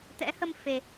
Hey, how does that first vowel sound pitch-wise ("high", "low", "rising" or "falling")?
rising